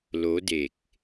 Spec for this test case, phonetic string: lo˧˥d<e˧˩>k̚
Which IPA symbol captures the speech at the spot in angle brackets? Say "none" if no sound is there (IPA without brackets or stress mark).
e˧˩